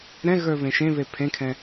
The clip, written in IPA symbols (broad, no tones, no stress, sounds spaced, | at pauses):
ɾ ɛ̃ ɣ ə˞ β ẽ ʃ ẽ β e pʰ ẽ kʰ ɛ̃